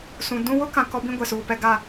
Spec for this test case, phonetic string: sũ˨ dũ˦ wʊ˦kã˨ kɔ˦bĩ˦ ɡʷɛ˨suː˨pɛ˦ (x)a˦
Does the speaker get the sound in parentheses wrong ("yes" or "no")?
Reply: yes